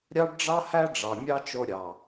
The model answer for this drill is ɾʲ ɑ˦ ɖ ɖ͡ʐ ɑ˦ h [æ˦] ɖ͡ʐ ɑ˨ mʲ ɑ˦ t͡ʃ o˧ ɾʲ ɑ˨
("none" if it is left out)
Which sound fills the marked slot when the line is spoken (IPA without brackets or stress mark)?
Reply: æ˦